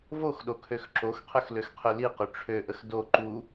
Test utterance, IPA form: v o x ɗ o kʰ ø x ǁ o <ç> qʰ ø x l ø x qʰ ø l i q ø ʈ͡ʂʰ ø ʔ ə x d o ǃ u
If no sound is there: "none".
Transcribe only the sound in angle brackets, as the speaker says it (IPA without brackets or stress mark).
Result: x